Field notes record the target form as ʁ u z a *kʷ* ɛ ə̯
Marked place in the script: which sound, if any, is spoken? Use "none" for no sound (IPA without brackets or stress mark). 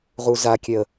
kʲ